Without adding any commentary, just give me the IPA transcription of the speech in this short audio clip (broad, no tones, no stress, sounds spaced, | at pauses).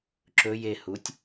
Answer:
ǁ ɵ j e h u tʲ